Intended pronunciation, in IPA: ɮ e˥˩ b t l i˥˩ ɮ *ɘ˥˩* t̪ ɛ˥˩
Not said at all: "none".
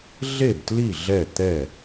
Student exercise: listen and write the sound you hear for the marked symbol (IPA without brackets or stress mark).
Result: ɛ˥˩